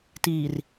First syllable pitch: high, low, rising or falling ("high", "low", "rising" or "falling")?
low